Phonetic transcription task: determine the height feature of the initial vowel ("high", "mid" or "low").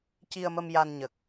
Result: high